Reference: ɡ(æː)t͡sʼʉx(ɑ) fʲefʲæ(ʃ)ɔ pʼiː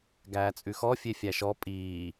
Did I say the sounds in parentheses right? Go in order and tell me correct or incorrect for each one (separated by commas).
correct, incorrect, correct